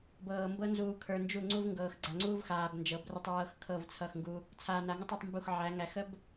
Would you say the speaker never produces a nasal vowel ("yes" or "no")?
yes